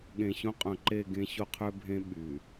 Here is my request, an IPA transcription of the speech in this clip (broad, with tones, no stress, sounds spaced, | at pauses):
ɠ ẽ˨ ɕ õ˦ qʼ œ̃˨ ǃ e˦˨ ɡ ẽ˦ ɕ o˦ qʰ ø˦ bʱ ẽ˦ ɓ y˨